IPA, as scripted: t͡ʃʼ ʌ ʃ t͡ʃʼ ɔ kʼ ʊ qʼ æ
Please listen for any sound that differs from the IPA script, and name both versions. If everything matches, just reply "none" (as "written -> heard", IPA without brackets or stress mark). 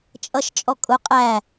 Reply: none